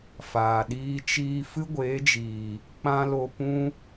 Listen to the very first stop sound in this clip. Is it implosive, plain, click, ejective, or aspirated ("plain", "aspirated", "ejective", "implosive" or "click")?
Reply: implosive